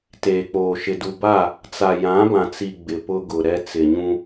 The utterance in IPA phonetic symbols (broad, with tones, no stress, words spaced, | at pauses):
teː˨k͡poː˨ʃɪ˨ du˨ba˦˨ | t͡sa˨jã˨˦bã˨t͡si˨ ɡ͡bɪ˨pʊ˦ɡʊ˨ɾɛ˦ t͡sɪ˨ɲũ˦